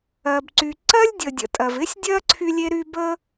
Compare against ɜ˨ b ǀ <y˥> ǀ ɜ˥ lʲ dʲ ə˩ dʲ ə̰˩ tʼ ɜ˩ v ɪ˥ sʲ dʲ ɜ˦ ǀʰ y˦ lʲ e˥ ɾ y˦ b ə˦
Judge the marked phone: incorrect: y˨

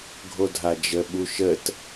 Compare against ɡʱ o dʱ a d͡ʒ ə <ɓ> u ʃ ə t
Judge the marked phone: correct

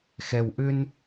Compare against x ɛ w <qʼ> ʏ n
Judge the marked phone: incorrect: ʔ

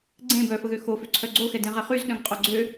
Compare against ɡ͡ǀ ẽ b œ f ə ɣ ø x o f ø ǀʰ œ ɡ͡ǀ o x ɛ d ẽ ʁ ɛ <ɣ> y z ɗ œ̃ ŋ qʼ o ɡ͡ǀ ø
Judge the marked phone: incorrect: χ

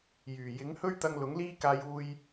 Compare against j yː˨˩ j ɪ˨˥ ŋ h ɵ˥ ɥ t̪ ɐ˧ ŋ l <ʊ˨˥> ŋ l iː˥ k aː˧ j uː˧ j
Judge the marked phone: correct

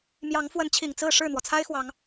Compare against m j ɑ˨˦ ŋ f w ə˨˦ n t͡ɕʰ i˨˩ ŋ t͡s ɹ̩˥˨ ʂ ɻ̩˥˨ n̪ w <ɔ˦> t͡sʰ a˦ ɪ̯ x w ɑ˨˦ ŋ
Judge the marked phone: incorrect: ɔ˩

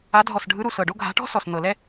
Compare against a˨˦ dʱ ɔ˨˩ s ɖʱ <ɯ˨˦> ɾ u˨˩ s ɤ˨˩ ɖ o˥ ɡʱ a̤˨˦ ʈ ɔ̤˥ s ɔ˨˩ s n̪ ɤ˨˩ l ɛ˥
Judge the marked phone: correct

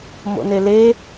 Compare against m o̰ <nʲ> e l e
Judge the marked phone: incorrect: n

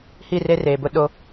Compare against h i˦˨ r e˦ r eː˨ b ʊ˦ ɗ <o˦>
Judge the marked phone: correct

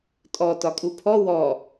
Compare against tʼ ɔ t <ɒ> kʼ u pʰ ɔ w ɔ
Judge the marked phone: correct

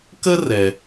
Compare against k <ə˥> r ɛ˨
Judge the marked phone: correct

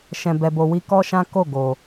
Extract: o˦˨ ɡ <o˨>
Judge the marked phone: correct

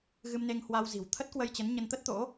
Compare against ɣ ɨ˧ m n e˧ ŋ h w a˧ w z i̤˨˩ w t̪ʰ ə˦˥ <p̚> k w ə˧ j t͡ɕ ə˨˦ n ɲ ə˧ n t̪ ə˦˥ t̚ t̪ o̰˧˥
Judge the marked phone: incorrect: t̚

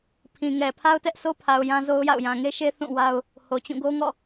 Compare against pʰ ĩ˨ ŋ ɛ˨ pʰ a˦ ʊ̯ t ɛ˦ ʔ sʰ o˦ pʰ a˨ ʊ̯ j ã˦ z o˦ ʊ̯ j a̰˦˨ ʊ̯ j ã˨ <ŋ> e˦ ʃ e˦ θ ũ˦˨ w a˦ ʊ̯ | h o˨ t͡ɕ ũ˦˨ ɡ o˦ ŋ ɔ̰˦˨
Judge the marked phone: correct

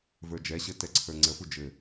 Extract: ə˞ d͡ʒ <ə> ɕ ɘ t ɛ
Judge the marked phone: incorrect: ɛ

